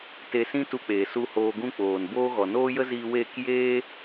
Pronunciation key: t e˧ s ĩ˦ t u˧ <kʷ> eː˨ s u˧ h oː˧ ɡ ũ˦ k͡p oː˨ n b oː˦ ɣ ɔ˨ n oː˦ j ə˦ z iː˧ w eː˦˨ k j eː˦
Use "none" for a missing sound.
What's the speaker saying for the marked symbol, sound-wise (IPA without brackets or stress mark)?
k͡p